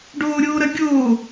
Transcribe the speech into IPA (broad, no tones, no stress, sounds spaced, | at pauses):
ɖ oː ɾʲ oː ɾ ɐ ɡʲ oː